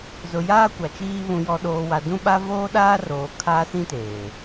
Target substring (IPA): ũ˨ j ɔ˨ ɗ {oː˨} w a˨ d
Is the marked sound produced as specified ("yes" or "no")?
yes